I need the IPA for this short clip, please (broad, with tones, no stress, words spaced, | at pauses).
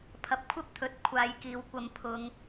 pʰɐ˨p̚kʷʰɐ˥p̚ t̪ʰɵ˨t̚ kʷʰaː˨˧jkiː˨wkʷɐ˧m pʰʊ˨˧ŋ